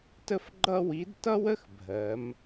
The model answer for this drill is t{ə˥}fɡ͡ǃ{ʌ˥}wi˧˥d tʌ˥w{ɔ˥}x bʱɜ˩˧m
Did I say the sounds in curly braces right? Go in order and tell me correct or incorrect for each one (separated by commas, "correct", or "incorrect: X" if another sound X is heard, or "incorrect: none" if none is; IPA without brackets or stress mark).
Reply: correct, correct, incorrect: ə˥